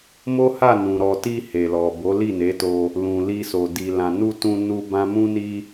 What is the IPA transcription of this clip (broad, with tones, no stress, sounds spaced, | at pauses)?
m o˦ h a˦˨ n ũ˨ ɾ ɔ˨ t i˧ h e˨ l ɔ˨ b o˨˦ l i˦˨ n e˨˦ t o˧ | l ũ˨ l i˧ s o˨ d i˨ l ã˨ n u˧ t ũ˧ n u˦ b ã˦ m ũ˦ n i˦